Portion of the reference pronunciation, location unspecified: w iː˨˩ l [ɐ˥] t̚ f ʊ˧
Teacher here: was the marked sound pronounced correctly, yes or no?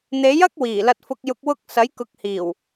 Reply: no